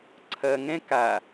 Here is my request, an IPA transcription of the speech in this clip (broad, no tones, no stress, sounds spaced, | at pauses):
ǀʰ ɐ ŋ ɛ̃ k a